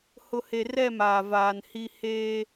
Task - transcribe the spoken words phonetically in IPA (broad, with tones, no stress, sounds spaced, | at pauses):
h ʊ˨ h e˨ r ɛ˦˨ m aː˨ v aː˨ n h i˦ h eː˦